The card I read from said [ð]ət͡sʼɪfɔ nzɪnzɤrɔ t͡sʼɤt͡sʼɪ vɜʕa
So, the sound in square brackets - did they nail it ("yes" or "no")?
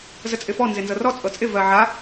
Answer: no